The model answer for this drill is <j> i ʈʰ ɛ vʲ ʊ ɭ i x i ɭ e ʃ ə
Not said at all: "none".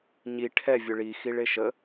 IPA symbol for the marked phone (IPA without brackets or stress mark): ɲ